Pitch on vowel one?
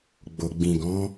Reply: low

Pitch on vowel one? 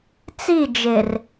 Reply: falling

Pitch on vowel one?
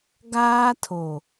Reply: high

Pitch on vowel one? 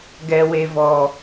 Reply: low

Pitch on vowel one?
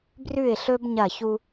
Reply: falling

